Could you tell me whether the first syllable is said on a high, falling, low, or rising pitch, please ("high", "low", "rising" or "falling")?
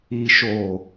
low